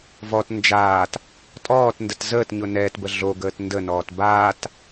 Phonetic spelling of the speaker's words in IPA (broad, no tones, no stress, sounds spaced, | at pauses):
v ɔ t n d͡ʒ aː t | tʼ ɔː t n d ə t z əː t ɲ ʊ n ɛː t b ə ɮ o ɡ əː t n d ə n ɔː t b aː t